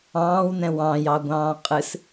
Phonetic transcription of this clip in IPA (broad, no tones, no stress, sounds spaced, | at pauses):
ɑ̃ː w n ɛ̃ w ɑ̃ j ɑ ɡʷ ɑ̃ː qʼ ɨ s